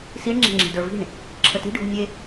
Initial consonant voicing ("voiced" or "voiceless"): voiceless